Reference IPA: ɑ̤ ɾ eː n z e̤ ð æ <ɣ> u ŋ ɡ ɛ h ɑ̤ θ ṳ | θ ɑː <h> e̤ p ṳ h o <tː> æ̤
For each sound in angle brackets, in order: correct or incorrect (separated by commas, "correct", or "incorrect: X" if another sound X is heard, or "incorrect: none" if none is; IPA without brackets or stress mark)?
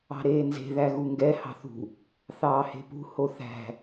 correct, correct, incorrect: θ